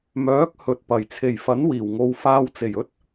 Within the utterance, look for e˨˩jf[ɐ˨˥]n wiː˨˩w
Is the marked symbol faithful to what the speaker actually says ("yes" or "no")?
yes